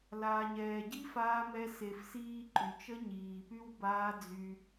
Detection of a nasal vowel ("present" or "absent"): absent